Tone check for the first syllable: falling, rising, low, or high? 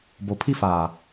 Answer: low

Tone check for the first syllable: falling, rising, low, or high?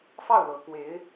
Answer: falling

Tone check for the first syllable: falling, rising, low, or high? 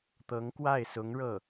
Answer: rising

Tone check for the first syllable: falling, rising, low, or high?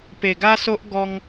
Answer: low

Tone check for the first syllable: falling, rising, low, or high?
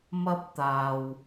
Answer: high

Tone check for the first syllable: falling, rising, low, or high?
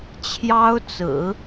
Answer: high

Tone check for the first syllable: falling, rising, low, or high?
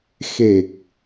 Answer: low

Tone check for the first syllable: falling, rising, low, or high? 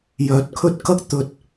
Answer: low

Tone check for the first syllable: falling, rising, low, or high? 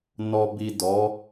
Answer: low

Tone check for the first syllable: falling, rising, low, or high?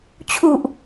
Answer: low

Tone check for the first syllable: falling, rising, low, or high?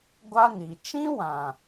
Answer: high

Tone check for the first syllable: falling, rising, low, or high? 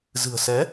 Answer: low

